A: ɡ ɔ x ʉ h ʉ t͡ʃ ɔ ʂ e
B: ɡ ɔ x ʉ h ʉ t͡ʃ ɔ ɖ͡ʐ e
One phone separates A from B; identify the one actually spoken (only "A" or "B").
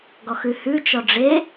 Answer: B